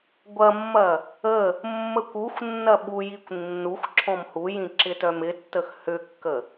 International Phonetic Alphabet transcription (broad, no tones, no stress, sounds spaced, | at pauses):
ɡʷ ɐ mː ɐ | ə | mː ə kʷ u xʷ nː ɐ ɓ u j i kʷ nː u xʷ ǁʰ ɔ̃ m h u j ĩ ǁ ɪ t œ m ɪ tː ə x h ʏ kː ə